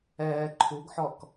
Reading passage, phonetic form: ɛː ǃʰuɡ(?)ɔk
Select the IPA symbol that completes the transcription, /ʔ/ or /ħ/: ħ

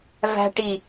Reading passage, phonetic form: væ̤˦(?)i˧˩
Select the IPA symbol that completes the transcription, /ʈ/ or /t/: ʈ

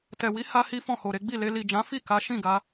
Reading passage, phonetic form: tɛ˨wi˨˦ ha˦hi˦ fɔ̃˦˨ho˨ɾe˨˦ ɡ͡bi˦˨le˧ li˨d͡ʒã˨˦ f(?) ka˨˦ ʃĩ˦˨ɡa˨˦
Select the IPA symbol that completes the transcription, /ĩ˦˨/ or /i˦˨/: i˦˨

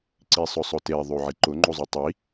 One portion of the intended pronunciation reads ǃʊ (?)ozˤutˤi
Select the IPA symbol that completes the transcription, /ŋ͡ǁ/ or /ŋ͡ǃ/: ŋ͡ǃ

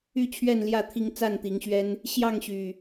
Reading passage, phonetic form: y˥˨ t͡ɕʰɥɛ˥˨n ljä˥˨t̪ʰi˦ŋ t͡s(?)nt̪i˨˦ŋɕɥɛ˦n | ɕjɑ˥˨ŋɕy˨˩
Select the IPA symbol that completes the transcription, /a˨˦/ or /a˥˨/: a˥˨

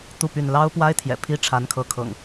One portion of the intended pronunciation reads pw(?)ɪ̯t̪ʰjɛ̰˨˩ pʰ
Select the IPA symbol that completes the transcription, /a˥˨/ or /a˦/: a˦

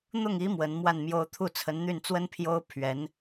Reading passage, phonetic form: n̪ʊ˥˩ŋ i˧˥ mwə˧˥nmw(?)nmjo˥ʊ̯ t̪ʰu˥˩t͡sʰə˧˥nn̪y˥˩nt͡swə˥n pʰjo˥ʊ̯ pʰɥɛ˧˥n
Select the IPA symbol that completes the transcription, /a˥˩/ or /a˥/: a˥˩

